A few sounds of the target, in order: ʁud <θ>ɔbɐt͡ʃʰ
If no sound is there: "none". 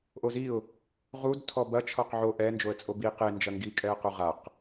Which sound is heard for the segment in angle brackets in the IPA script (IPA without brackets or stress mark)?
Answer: tʰ